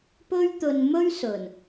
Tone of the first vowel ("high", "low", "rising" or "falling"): high